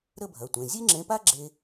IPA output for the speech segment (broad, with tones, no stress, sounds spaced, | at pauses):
ɾ ə˥˧ bʱ ɐ˩˧˩ tʷ ẽ˩˧˩ zʲ e˥ ŋ͡ǁ ẽ˨˥ p a˥ ɡ͡ǁ e˥